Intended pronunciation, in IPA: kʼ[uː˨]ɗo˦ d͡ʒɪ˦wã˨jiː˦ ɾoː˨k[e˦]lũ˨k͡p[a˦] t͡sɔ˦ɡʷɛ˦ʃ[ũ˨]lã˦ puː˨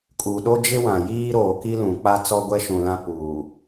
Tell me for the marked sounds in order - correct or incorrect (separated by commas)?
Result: correct, incorrect, correct, correct